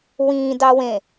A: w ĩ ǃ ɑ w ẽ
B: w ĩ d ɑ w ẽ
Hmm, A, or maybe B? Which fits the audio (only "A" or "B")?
B